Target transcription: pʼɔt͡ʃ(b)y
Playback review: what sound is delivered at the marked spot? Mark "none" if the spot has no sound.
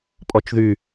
ð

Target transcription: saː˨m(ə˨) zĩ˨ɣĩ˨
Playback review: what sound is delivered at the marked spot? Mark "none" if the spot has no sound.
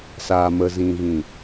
ə˨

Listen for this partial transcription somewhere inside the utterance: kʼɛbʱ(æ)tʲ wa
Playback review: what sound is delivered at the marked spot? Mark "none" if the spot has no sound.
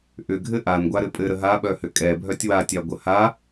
œ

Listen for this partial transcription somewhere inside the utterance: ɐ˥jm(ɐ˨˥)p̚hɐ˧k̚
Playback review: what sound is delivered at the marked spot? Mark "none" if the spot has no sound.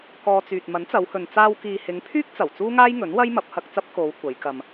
ɐ˨˥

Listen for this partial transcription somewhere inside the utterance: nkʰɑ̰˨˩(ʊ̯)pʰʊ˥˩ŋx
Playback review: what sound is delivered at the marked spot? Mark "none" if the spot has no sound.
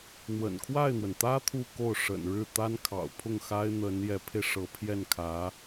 ʊ̯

